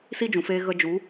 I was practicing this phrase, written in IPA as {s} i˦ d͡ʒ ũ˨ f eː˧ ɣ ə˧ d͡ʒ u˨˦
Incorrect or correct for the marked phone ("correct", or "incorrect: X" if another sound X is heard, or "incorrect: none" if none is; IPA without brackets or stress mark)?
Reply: correct